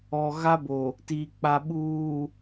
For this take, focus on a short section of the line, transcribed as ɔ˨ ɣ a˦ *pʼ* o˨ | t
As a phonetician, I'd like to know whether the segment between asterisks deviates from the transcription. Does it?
yes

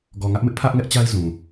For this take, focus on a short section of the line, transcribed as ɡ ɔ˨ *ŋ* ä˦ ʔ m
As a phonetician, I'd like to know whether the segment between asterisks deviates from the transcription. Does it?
no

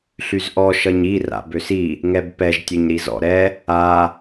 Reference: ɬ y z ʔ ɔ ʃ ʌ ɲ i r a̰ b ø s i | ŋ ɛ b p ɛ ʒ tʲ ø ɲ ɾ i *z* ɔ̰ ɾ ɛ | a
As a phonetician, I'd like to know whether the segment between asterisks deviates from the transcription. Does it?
no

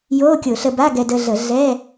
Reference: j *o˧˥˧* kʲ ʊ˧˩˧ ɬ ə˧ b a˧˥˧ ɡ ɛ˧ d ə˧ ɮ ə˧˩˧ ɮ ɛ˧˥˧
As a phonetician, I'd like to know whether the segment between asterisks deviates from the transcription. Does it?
no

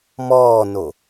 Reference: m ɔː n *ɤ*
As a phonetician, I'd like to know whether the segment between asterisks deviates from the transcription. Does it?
yes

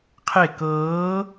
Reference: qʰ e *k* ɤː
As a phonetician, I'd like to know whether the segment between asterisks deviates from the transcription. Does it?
no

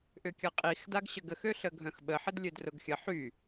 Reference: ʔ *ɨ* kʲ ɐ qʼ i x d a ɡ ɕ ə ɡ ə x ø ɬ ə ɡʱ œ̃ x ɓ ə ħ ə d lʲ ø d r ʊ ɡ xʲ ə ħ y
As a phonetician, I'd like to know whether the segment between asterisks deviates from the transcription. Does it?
yes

